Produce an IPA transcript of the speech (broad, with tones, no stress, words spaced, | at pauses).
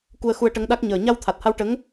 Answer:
ku˧ə̯xu˧ə̯ʈə˧˥ŋɗa˦˥k̚ ɲəː˨˩ ɲa˧wt̪ʰa˨˩t̚ha˧wʈə˧˥ŋ